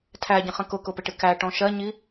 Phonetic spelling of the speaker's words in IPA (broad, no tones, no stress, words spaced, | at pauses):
tʰæɟə̃χə̃ kʊkʊpɪʈɪ kæʈɔ̃ ʃɜɲi